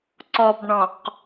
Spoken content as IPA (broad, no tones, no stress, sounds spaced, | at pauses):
ǀ ɔ b ɳ ɔ̃ q